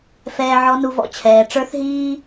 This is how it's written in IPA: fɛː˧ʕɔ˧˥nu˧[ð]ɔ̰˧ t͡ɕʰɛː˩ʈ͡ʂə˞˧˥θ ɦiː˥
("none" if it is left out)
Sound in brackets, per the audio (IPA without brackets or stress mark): v